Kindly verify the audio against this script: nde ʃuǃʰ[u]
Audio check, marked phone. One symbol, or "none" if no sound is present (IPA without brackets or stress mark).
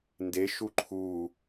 u